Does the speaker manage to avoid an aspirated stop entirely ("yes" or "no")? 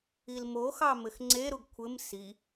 no